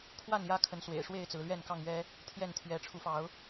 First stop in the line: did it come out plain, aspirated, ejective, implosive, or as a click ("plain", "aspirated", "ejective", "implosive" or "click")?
aspirated